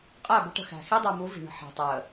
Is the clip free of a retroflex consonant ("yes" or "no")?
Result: no